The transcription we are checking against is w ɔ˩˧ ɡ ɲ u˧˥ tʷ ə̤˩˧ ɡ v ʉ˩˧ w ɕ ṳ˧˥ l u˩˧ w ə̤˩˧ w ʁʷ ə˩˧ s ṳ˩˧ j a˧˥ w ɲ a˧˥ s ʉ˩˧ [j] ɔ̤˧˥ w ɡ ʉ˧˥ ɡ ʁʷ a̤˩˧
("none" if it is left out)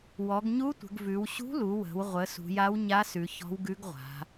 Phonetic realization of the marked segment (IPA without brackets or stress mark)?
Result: ç